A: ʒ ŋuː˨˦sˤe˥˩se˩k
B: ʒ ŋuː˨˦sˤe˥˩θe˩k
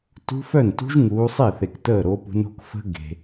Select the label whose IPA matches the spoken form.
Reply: B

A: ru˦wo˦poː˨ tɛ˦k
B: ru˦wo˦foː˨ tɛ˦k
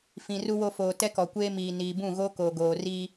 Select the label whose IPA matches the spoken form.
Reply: B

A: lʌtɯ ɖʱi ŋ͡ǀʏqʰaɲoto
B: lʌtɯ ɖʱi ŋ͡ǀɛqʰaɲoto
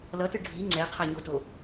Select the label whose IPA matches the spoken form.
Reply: B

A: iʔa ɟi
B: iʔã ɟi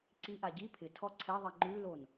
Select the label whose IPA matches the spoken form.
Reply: A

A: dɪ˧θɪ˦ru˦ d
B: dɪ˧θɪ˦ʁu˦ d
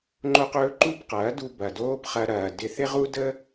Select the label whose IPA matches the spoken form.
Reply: B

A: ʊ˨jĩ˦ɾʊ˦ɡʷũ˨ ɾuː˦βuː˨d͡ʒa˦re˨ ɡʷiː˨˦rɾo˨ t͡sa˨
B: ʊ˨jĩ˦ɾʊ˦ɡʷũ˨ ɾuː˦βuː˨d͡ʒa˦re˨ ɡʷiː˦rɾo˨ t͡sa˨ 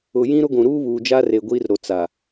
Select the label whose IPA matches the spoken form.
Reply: B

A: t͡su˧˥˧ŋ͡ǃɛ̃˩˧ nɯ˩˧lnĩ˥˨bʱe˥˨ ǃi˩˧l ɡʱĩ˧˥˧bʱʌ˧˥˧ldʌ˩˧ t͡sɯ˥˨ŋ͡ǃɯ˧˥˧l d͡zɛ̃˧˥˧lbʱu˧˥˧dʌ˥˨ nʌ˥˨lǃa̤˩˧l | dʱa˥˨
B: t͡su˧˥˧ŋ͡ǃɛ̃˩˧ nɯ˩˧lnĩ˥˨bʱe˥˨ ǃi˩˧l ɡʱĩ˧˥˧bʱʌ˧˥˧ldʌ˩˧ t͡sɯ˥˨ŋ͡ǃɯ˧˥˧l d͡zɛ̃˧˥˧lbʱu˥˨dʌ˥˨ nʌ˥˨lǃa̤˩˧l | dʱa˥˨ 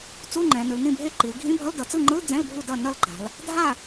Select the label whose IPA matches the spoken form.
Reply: B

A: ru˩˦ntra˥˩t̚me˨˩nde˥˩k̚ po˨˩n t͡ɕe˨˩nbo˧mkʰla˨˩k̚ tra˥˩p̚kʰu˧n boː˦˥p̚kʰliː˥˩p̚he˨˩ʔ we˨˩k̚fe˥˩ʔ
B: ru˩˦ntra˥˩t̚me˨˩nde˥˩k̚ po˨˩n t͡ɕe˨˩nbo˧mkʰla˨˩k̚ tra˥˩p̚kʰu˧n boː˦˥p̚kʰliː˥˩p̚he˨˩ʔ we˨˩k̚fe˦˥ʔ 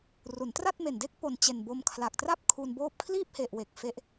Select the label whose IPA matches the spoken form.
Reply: B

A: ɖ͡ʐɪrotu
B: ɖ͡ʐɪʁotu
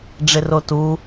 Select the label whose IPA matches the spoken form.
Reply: A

